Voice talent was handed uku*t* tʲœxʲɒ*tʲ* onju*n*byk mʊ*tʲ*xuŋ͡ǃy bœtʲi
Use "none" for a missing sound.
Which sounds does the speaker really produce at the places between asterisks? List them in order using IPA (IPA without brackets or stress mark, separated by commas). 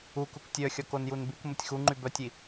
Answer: k, k, n, tʲ